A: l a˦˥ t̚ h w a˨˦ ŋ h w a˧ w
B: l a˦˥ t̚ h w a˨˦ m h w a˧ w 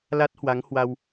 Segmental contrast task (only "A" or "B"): A